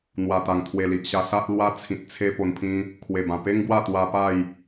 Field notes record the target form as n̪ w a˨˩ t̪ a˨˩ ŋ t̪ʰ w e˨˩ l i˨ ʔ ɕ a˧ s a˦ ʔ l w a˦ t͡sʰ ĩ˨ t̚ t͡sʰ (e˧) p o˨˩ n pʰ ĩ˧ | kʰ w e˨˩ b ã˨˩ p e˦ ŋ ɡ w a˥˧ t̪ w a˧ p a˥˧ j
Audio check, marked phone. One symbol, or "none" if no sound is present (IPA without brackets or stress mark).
e˧